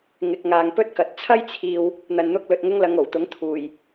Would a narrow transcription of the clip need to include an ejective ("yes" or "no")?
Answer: no